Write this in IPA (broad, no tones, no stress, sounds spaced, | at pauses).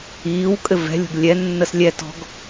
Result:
iː w kʼ ɘ v ɛ̤ lʲ o̤ ɡ lʲ ɛ nː ə s lʲ ɛ t ɔ̤ ɡ